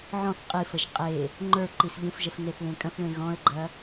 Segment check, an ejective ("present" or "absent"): present